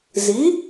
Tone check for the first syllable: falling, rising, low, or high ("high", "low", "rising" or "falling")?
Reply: rising